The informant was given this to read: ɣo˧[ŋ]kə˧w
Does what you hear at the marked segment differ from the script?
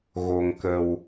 no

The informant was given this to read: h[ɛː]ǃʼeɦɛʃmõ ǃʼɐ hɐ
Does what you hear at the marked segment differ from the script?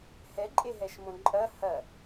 yes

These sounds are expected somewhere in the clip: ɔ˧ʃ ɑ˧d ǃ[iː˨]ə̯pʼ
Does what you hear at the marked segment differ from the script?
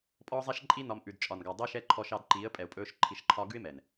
yes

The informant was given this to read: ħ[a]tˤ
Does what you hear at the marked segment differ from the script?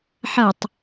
yes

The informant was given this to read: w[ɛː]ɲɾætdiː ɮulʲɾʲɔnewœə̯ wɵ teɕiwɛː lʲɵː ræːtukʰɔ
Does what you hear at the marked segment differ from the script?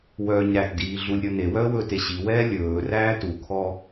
yes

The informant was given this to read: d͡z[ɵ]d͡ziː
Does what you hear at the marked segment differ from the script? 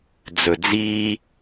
no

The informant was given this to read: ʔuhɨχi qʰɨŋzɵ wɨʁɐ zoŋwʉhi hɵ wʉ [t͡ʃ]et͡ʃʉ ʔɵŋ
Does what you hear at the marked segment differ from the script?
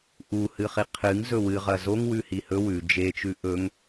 yes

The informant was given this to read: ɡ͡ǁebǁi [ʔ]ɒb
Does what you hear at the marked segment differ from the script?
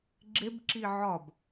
yes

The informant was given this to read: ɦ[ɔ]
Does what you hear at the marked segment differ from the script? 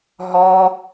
no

